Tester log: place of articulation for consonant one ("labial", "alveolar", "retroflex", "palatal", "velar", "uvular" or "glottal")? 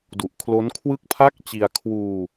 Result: alveolar